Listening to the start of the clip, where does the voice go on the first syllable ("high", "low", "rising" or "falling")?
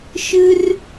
high